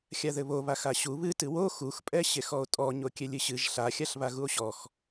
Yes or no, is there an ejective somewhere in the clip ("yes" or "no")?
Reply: yes